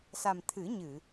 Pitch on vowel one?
low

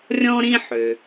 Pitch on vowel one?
high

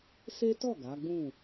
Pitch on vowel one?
high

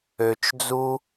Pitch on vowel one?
low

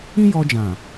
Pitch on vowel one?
high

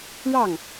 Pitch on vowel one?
falling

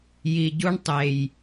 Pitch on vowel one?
low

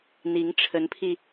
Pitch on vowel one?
rising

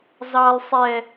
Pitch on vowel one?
high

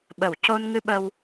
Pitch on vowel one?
low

